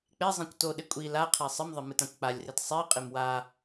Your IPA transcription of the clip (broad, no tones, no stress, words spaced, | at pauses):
k͡pezˤĩkʷ toɗɪ kʷʼi la qʰesˤɪmðˤɪ mɨtãkʷk͡palʲret sˤiqʼɪm wa